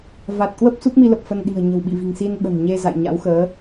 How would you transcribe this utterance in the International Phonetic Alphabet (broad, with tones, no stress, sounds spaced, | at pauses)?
v a˨˩ t̚ k w ə˦˥ p̚ s u˦˥ k̚ m i˧ l ə˨˩ p̚ f ə˧ n ɗ i̤˨˩ ə̯ ɲ ə̤˨˩ w ɓ ḭ˧˨ v i̤˨˩ ŋ s i˧ n ɓ ə̤˨˩ n ɲ e˧ z a̰˧˨ j ɲ a̰˧˥ w x əː˨˦